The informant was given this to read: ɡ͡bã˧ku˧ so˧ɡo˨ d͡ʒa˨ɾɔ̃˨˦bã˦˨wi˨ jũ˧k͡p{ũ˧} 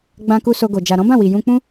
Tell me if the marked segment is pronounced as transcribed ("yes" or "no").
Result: no